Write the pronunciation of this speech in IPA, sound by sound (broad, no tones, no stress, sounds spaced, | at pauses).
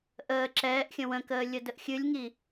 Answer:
ʔ əː ǁ ɛː ʔ xʲ ə̃ w ə̃ k əː lʲ ə d ə ʔ xʲ ɨ lʲ ŋ i